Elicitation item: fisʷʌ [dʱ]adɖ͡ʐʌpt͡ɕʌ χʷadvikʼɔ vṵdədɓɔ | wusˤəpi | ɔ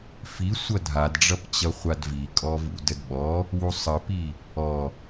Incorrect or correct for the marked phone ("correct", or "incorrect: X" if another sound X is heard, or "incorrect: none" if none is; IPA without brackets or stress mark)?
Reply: correct